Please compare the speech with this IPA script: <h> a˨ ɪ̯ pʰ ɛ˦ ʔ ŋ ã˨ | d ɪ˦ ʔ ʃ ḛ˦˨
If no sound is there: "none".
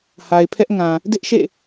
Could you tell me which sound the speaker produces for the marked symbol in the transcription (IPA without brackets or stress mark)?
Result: h